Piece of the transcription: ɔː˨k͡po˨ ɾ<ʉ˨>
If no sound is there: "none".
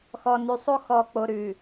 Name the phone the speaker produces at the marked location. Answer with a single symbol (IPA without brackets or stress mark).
ʉ˨